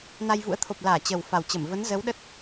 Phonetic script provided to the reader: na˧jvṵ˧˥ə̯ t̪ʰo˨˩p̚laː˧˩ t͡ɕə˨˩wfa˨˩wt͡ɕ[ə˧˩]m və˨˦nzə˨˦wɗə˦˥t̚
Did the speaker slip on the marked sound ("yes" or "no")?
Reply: no